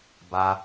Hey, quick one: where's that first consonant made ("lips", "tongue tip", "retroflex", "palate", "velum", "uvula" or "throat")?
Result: lips